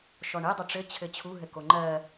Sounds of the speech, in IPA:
ʃɔɳedˤɘ ʈ͡ʂɘ t͡ɕʰɘt͡ɕʰu ɦɘkoŋ͡ǃɜ

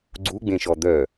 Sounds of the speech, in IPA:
ɡ͡ǀuɡ͡bẽʃɔ d̪œ

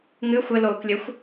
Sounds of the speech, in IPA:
ŋɨ xʷɘloːklʲɘxʷ

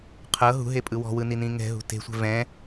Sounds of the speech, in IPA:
qʰɤ ɦṳɦepʼɯ wɔ̤wɯninĩ ŋɛ̤ɦṳ te̤sʷɛ̤ vɛ̃

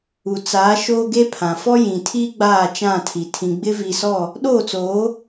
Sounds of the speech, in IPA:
u˨t͡saː˨˦ ʃoː˦ɡe˦pʰã˨ fɔ˦jĩ˨tʰiː˦ ɡ͡baː˦˨t͡ʃã˦˨tʰi˨ tʰĩ˨ɡ͡bɪ˦vi˨sɔ˦˨ | ɗoː˦˨t͡soː˨˦

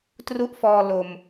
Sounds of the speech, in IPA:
tru˥˩ʔfɔː˧ lo˨˩m

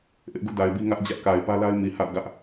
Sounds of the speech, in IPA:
ʔɪ˦ʔɡṵ˦˨da˨ɪ̯bi˦ ŋä˦ʔd͡ʑä˦ʔka˨ɪ̯ pä˦la˦ɪ̯ mi˨ha̰˦˨ʊ̯ɡä˦ʔ

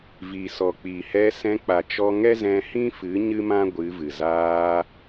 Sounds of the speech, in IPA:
vi˨sɔ˨k͡pi˨ hɛ˧sɛ̃˧k͡pa˨t͡ʃɔ˧ ŋɛ˦ zɛ̃˧hĩ˦fɨ˨˦ ɲɨ˦mã˦ ɡʷɨ˨˦vɨ˨ zaː˧

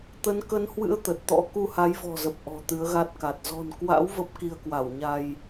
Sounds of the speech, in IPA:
t̪ə˨˦nkə˨˦nhwɨ̰˧˥ə̯ t̪ə˨˩t̚t̪ɔ̰˧˥ ku˧ha˨˦jvɔ̤˨˩zə˨˩p̚ ʔɔ̤˨˩t̪ɨ˨˦ə̯ɣa˦˥t̚ka˨˩t̚ zɔ̤˨˩n kwa̰˧˥w və˦˥p̚ki˧ə̯kwa˧˩wɲa˧j

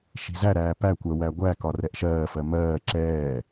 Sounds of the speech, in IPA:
ʃi̤zæɾæː pækʷɜ wæɡʷækɒ rɛʔʃɜːfɜ mɜː ǁɛː

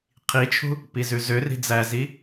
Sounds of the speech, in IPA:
qʰit͡ʃʰṳ | pizʉzøri̤ d͡zæzi

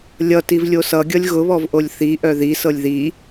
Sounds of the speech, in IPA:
lʲʌtiv lʲosʌɡʲʌlʲ ɣʊβɔvʔolʲ θi ʔœði sɤlʲði

